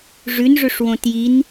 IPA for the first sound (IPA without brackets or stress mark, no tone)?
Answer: ʐ